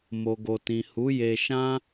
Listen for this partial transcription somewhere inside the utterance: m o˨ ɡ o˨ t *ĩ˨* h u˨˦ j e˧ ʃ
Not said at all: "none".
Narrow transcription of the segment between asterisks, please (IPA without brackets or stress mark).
ĩ˨